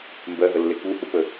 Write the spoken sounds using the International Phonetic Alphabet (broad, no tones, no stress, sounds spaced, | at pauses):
m b ɜ ɦ ə lː e k u h u p ə